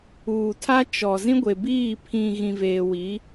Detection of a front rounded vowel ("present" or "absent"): absent